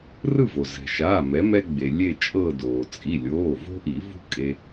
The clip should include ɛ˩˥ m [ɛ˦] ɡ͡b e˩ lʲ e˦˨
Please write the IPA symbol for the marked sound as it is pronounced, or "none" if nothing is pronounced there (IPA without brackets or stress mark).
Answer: ɛ˦